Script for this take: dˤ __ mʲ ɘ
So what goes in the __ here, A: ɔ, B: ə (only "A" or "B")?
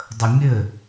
B